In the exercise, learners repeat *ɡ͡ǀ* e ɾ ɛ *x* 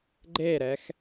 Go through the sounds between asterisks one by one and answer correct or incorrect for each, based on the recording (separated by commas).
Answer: incorrect, correct